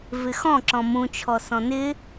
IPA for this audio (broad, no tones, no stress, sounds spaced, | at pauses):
v ɪ x ɔ̃ ǁ ɔ̃ m ũ t͡ʃʰ ɔ s ɔ̃ n ɪ